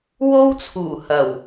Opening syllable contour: high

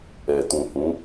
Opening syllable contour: low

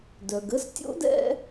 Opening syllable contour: low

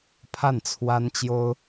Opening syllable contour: falling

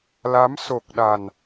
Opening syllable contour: rising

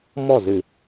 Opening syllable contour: falling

